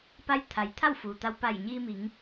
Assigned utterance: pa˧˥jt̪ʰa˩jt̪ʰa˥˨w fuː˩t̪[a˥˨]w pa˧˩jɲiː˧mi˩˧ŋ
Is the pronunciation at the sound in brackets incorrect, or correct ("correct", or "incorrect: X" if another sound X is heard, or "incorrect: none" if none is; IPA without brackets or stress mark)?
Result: incorrect: a˧